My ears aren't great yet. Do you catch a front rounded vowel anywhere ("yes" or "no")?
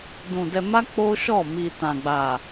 no